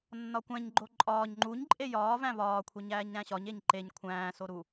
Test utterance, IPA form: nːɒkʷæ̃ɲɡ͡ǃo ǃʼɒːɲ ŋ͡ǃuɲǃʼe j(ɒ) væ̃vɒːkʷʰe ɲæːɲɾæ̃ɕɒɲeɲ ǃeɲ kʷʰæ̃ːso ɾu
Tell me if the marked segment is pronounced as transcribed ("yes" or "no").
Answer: no